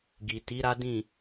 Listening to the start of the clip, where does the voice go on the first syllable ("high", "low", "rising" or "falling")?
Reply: low